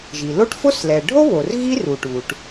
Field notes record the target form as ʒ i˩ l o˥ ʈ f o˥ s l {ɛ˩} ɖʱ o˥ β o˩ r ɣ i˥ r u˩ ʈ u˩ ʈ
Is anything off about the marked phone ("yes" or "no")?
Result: no